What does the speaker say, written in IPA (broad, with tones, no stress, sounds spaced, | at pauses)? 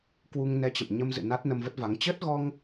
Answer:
k w u˧ ŋ n ɛ˧ t͡ɕ ə̰˧˨ m ɲ ə˧ m z ɨ̰˧˨ n a˦˥ t̚ n ə˧ m v ə˦˥ t̚ v a˨˦ ŋ t͡ɕ ə˦˥ t̚ ɣ ɔ˧ ŋ